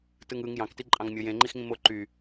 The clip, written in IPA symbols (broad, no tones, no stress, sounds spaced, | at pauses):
t ɯ ŋ ɯ ŋ j ɑ̃ k t i ǃʼ ɑ̃ ŋ mʲ o j ẽ ŋ͡ǃ i x ŋ ĩ m o ǃ y